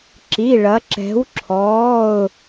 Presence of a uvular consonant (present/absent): absent